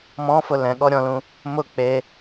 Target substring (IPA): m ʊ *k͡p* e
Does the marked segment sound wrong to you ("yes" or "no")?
no